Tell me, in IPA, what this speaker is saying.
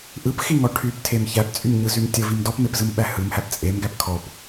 ʔ ɯ p x i ŋ ɔ ʈʰ y p tʰ e m ç æ p t͡sʼ y m ɲ ɯ z y m tʲ ə v i m d ɔ p m e p z ɯ m ɓ æ h ɯ m h æ p t͡sʼ e m ɡ æ p kʰ ɔ p

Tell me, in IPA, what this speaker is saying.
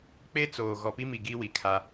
k͡p e˦ t͡s oː˨ ɣ ɔ˨ p i˦ m i˨ ɡ i˦ w i˨ kʰ a˦

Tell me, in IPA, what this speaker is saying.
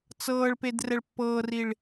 t͡s ɤː ɭ p e d r ɛ ɭ pː ɤː r i ɭ

